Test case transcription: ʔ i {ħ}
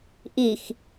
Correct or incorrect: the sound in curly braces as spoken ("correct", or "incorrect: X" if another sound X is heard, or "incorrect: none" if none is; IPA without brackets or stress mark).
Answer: incorrect: x